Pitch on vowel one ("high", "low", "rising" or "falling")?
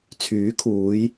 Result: rising